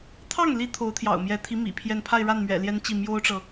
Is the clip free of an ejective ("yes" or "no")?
yes